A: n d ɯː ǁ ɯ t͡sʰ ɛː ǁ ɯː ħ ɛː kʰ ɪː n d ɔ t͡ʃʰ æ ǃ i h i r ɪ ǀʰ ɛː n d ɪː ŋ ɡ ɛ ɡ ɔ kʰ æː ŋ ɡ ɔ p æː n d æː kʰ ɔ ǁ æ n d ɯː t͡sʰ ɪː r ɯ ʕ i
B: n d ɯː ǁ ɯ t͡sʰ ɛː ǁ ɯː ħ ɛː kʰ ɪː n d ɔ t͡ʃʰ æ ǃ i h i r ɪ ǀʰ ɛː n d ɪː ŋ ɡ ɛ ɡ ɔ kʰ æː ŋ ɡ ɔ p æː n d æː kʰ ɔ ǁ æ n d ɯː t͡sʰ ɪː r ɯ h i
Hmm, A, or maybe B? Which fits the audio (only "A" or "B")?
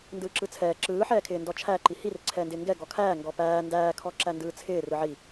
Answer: A